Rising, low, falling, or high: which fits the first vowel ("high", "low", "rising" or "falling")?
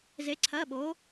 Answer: rising